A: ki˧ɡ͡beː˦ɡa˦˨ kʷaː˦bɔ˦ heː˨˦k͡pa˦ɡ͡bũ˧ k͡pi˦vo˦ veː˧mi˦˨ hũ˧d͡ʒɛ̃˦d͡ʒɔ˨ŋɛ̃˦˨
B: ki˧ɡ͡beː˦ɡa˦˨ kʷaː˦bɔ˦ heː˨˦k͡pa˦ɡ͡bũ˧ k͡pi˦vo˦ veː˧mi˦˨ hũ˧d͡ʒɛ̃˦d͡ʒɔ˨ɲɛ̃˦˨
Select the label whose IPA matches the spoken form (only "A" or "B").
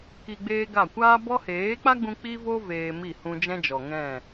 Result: A